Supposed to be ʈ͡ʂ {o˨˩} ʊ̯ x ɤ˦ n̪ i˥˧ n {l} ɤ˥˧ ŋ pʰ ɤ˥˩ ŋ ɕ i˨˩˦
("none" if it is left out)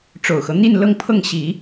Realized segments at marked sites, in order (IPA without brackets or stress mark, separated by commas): o˨˩, l